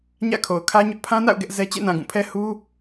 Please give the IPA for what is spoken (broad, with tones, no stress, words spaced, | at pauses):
ɲä̰˦˨kʰo˨ʊ̯kʰä˦ɲʊ˦ʔ pʰã˦na̰˦˨ʊ̯ ɡɛ˦ʔzɛ˦ t͡ɕḛ˦˨nã˨ ɡũ˦˨pʰɛ˦ hu˦